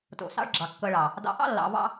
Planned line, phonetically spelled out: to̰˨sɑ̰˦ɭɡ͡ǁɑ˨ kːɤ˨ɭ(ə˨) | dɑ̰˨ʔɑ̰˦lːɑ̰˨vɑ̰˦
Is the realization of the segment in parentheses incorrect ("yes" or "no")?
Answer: yes